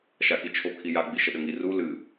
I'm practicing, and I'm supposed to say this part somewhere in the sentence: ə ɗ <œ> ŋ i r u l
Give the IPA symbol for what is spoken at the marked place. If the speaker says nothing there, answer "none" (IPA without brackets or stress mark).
ə